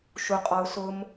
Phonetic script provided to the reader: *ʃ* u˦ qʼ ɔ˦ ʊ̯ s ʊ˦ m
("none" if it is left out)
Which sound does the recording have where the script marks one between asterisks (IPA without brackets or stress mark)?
ʃ